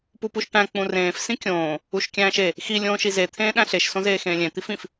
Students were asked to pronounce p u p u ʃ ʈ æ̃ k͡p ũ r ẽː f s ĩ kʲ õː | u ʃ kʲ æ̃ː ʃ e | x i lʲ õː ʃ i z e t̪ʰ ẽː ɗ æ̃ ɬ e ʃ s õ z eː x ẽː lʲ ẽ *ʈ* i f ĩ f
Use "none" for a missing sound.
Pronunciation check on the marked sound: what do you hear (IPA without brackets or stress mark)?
t̪